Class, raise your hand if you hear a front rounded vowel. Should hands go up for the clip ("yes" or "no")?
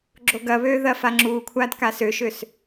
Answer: yes